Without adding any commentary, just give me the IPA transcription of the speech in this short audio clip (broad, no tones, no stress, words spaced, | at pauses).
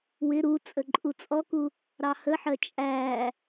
wɪ ɾu t͡sʼəǃʼut͡sʼɔku | ɾɑhəħɜ t͡ʃʼæ